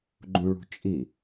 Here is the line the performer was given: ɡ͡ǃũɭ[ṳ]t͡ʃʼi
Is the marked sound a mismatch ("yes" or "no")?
no